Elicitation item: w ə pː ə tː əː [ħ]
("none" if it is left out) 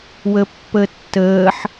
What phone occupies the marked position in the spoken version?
ħ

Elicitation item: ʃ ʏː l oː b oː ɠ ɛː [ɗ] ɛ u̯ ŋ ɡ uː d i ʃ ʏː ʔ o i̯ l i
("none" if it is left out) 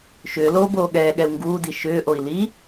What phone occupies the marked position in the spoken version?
ɠ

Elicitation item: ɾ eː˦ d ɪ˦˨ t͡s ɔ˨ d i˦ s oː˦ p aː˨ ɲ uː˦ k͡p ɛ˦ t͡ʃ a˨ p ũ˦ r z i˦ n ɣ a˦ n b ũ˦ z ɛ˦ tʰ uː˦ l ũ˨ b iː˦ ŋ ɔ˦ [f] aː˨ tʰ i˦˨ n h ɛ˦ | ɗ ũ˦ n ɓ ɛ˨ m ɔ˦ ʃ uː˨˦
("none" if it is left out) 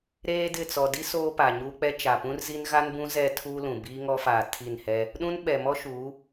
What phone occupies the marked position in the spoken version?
f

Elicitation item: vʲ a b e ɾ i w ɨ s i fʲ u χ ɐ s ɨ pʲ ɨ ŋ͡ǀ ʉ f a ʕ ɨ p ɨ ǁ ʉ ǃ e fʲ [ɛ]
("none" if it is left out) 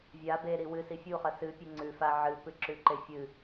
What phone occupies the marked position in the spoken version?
ɨ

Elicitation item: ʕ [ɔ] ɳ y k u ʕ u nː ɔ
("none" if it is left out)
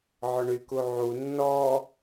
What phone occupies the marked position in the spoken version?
ɔ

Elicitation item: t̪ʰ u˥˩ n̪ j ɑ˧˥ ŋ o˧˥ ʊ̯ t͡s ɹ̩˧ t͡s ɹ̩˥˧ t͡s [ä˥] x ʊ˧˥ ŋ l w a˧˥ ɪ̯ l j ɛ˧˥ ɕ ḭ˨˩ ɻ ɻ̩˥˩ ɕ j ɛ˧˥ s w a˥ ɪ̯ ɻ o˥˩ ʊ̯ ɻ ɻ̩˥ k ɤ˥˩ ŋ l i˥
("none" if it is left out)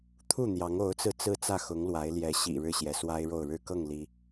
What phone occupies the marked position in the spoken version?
ä˥˩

